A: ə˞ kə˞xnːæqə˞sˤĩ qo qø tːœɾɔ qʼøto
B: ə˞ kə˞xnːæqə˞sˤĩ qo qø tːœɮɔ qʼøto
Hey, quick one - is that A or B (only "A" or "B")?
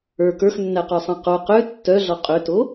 B